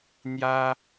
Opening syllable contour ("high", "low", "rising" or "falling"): high